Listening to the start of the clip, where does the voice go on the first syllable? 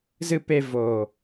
low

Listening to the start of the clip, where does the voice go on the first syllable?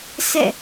falling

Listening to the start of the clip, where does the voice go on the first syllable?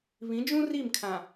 rising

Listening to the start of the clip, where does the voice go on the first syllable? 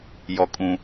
low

